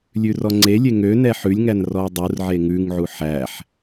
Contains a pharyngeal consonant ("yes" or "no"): yes